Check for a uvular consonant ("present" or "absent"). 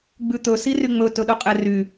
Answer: present